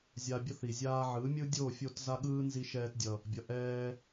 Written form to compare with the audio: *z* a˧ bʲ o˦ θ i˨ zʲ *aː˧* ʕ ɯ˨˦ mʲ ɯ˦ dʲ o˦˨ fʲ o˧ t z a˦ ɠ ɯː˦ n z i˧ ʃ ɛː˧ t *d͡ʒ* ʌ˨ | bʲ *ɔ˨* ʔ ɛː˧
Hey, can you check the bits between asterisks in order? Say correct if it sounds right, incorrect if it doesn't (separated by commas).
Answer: incorrect, correct, incorrect, incorrect